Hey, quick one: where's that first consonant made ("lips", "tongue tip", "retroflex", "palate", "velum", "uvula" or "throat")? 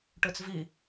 retroflex